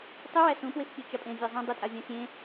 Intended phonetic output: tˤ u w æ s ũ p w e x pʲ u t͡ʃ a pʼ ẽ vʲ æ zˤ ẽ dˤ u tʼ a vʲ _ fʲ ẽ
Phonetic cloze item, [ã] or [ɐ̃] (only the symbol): ã